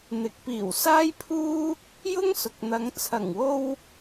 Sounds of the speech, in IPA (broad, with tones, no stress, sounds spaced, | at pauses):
n̪ ɪ˨ k̚ p iː˨˩ w s aː˥ j pʰ uː˥ | j ʊ˥ ŋ s ʊ˨ k̚ n̪ ɐ˨˧ ŋ t͡sʰ ɐ˨˩ ŋ w o˧ w